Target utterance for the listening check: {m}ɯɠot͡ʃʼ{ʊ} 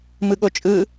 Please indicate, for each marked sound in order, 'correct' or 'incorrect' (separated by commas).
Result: correct, incorrect